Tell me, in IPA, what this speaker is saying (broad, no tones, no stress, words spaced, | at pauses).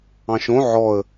ɑ̃ʃõ ʕɔə̯